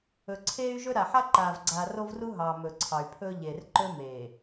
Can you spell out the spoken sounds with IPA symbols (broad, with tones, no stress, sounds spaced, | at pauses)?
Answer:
ɵ˨ ǀʰ eː˦ y̯ ʒ ɵ˦ ɾ a˨ ħ a˦ ǃ aː˨ v ɡ͡ǀ aː˨ r o˦ v r u˦ ɦ ɑː˨ m ɵ˨ ǀʰ ɑ˨ y̯ pʰ ɵː˦ ʎ e˨ r ǃ ɵ˦ m eː˨